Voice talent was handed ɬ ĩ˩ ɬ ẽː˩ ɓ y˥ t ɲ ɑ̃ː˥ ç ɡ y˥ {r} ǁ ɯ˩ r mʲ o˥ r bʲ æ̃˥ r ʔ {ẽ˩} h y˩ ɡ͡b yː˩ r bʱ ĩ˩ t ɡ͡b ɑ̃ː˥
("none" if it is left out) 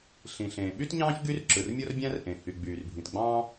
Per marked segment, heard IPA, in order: r, ẽ˩

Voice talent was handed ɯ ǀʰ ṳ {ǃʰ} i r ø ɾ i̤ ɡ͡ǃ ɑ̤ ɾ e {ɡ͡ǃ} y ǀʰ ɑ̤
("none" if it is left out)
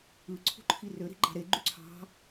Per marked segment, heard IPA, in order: ǃʰ, ɡ͡ǃ

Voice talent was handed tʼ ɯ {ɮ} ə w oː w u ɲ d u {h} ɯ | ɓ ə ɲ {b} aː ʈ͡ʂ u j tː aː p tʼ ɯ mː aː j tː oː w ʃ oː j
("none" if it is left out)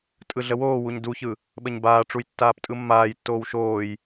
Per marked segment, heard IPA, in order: ɮ, ç, b

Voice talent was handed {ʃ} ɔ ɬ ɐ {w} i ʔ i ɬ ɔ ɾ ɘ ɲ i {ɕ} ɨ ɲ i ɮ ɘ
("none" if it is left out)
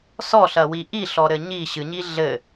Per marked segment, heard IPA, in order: s, w, ɕ

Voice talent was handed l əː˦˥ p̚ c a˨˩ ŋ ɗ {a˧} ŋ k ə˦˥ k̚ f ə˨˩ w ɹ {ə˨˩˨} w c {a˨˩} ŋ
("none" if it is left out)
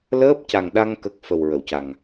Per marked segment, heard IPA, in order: a˧, ə˨˩˨, a˨˩

